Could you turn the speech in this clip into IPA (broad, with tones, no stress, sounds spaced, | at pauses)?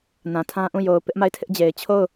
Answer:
n ã˨ tʰ ã˦ ʔ ũ˦˨ j o˨ ʊ̯ p ɪ˦ ʔ m a˦˨ ɪ̯ tʰ ɪ˦ ʔ d͡ʑ e˨ ɪ̯ t͡ɕʰ o˦˨ ʊ̯